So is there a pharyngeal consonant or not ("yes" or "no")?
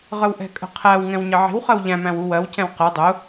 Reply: yes